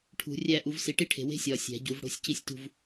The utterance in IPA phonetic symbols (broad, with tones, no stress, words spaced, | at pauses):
ʈʰṳ˨˩˦rʲæ˥˧ ʔu˨˩˦vsi˨˩˦ʈi˥˧ʈʰe̤˨ we̤˥sʲɒː˨ sʲæ̤˨˩˦ɟu˨˩˦v ɽo̤˥˧sʲci˥sʲtṳ˥˧v